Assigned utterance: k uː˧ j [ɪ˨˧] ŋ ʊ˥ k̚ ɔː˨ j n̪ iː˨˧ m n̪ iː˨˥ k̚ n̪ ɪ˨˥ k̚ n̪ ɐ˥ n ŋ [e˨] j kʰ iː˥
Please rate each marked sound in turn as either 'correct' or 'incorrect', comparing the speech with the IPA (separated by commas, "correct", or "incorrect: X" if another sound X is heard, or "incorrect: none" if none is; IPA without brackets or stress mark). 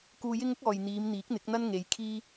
incorrect: ɪ˥, incorrect: e˨˧